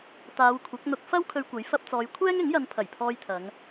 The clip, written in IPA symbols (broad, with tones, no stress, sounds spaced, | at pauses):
t̪ aː˨˧ w kʷʰ ɐ˨˥ k̚ n̪ ʊ˧ k̚ f ɐ˥ w kʰ ɵ˧ ɥ kʷ ɐ˨˥ j f ɐ˧ p̚ t͡s ɔː˨˧ j kʷʰ ɛː˥ ŋ ɪ˨˥ ŋ j ɐ˨˧ n pʰ ɐ˨˩ j pʰ ɔː˧ j t̪ʰ ɐ˨˧ ŋ